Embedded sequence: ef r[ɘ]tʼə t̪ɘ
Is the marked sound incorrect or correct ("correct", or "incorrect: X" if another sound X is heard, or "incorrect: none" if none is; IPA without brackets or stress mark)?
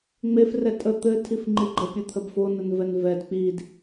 incorrect: ɛ